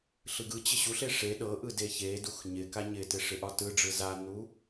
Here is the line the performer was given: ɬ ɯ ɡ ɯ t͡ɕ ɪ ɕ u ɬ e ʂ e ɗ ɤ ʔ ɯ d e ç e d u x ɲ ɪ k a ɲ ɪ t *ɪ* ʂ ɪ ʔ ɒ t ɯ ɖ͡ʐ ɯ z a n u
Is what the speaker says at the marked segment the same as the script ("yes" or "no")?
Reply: yes